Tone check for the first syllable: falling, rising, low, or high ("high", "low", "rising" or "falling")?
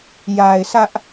low